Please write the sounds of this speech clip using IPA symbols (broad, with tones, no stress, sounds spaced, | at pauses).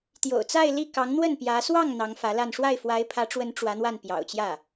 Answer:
t̪ j o̰˨˩ ʊ̯ t͡s a˥˧ ɪ̯ l i˥˩ k ɑ˧˥ ŋ n̪ w ə˥˩ n p j ä˧˥ s w ɑ˥˩ ŋ n̪ ɑ˧˥ ŋ f ä˧˥ l a˥˧ n ʂ w a˥˩ ɪ̯ f w a˧˥ ɪ̯ pʰ ä˧˥ ʈ͡ʂ w ə˧˥ n ʈ͡ʂ w ä˧˥ n̪ w a˥˩ n p j ɑ̰˨˩ ʊ̯ t͡ɕ j ä˥˩